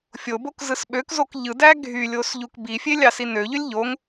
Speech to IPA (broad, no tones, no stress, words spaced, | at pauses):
fʲobok zɯsɓøkzok ʎɯdæ ɡʱylʲos ʎukbifʲe lʲɑsinøʎølʲ ʎoŋ